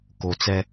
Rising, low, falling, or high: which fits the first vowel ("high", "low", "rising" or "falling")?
low